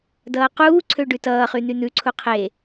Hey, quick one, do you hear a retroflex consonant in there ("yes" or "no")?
yes